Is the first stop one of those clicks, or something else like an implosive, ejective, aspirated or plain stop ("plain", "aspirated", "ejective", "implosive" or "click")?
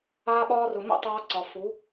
implosive